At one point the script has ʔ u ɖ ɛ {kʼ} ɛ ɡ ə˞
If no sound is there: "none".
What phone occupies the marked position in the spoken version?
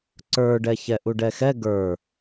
x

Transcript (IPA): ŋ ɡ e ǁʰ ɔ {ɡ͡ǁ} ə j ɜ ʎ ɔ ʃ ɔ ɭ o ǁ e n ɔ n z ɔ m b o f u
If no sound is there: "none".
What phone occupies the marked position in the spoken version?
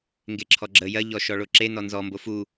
ɡ͡ǁ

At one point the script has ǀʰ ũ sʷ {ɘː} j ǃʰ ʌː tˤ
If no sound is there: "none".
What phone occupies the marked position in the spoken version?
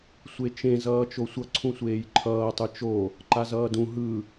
eː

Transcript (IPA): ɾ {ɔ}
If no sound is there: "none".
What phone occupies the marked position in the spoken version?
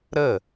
ə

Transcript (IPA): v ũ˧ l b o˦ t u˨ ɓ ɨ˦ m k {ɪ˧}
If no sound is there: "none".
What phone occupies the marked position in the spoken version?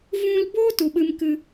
ɨ˧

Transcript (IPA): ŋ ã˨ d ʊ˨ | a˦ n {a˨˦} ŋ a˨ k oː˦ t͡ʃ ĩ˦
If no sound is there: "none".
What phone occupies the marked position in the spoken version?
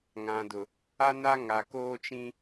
a˦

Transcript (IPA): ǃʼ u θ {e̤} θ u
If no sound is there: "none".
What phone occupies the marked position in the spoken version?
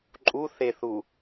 e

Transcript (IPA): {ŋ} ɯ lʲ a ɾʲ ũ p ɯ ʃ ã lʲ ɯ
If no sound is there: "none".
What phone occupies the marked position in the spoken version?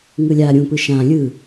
ŋ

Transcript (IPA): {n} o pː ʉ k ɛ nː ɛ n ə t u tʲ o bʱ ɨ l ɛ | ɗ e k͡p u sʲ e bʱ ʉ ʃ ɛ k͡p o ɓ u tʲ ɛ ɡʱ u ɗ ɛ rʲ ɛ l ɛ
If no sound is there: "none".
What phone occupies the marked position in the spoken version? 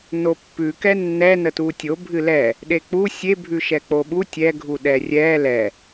n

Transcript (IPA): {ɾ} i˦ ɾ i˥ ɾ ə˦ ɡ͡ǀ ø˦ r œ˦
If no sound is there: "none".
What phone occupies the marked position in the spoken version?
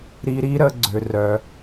ɾ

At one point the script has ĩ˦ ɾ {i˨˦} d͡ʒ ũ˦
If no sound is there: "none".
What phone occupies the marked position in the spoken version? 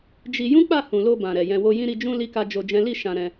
i˧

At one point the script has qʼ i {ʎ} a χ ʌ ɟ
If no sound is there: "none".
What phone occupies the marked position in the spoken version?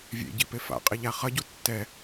ʎ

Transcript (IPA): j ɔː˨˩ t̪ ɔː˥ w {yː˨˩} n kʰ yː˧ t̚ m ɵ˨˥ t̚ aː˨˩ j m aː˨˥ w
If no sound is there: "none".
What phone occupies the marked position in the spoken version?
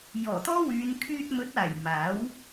yː˨˧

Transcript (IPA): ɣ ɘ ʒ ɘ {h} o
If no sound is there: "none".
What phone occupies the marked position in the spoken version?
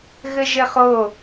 χ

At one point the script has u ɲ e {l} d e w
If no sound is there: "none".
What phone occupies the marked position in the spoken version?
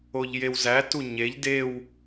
ʎ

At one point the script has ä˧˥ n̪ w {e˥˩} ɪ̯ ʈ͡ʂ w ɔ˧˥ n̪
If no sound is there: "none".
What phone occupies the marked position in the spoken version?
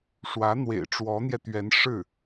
ḛ˨˩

